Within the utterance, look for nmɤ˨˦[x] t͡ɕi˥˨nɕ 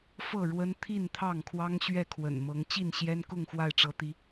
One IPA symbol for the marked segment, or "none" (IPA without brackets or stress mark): ŋ